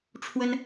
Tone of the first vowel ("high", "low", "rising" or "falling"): high